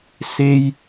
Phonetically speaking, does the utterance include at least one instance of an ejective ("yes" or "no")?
no